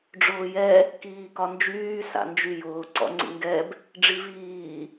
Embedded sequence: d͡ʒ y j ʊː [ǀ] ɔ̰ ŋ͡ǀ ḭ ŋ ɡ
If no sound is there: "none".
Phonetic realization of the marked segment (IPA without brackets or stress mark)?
ǀ